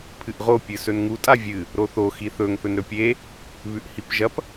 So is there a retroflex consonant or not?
no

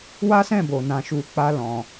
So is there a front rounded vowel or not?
no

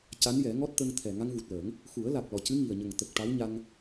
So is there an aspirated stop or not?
yes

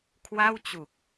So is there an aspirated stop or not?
yes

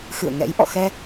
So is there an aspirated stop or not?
no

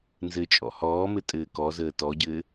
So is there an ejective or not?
yes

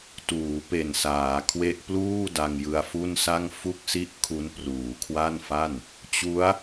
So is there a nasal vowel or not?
no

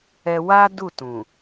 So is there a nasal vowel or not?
yes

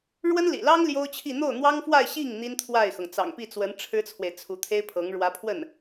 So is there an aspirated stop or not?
yes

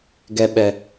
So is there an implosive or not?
yes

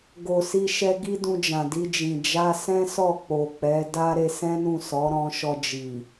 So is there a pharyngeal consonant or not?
no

